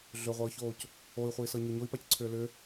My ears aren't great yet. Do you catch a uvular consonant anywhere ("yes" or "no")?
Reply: yes